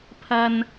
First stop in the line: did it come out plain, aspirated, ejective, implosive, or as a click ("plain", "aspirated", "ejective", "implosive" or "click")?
aspirated